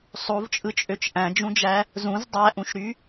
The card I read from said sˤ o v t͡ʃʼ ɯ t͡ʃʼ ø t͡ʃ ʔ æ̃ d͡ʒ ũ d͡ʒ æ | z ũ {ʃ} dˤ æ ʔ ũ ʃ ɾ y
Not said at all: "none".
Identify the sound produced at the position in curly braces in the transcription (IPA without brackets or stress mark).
z